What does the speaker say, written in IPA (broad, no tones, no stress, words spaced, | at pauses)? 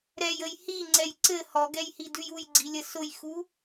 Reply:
ɾɛjəj hiŋ͡ǀɛj ǀɘ hɔɡɛjhidʉj ujɡ͡ǀilʲə sʊjxu